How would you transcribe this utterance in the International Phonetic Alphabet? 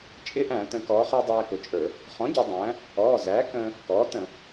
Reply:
t͡ʃʼ ɪ˦˥ ʔ æ̃˧˩˧ t ə̃˩˧ k ɔː˩˧ χ æ˧ dˤ æː˧ k ʊ˩˧ t͡ʃʼ ə˞˧˩˧ | χ ɔ̃˩˥ ɟ ɔ˩˧ dˤ æ̃ː˩˥ | ɔː˩˧˩ z æː˩˥ k ə̃ː˧ | k ɔː˩˥ t ə̃˧˩˧

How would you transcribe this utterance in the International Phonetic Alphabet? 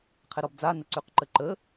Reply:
qʰ ɛ ɾ ɔ b d͡z a n ə ǀ ʉ q ǃ ə ǃ ə

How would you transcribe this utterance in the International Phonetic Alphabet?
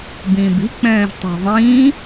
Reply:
b ĩː b i̤ k͡p ɛ̃ː ʒ tˤ e̤ ðˤ ĩː

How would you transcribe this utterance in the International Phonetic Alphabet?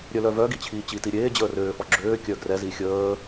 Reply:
ɾʲ œ l œ v œ ɡ i t͡ɕʰ iː t͡ɕ i t i ɾʲ eː d͡ʑ əː r øː f ɔ ɡ͡ǁ øː kʲ œ ɡ r ɛ z i xʲ əː

